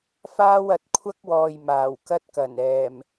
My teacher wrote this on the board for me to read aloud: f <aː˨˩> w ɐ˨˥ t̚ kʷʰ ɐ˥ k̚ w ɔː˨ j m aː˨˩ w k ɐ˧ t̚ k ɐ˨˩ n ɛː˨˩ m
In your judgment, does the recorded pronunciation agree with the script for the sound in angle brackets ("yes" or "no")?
no